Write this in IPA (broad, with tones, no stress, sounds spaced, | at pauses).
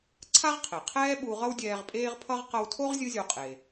ǀʰ a˥ ʁ qʰ e˩ qʰ ɛː˥ ɓ u˧ ʁ ʌ˥ w dʲ ɛː˧ ʁ pʼ eː˥ ʁ pʰ ʌ˥ ʁ q ʌ˧ w tʰ o˥ ʁ zʲ ɯ˥ zʲ o˧ qʼ e˩